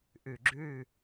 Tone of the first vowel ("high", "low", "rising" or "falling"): low